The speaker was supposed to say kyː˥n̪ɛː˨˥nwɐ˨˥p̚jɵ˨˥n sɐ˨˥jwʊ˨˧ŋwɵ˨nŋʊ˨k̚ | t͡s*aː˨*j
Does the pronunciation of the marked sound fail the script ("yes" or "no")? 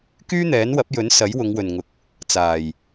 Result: yes